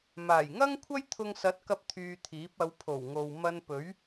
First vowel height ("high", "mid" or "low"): low